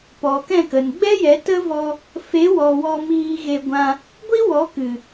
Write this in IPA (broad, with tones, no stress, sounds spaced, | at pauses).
p ɔ˨ k ɛ̃˦˨ k ə˨ n ɡ͡b ɛ˦ j ɛ˨˦ t ə˦ v ɔ˧ | f e˨˦ w ɔ˨ w ɔ˧ m iː˧ ɣ e˧ ɡʷ ã˧ | ɡʷ i˦ w ɔ˨˦ k ɨ˨